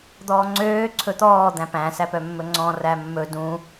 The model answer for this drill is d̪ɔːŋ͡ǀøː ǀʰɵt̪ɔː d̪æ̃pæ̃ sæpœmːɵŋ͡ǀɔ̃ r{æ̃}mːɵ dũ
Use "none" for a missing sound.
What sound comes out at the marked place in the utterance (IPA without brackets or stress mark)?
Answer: æ